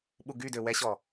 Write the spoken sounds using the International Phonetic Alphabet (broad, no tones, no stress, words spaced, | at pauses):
ɓuɡydø wɛɕɔ